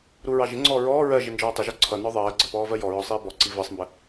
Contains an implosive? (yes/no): no